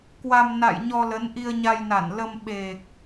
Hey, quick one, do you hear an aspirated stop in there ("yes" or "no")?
no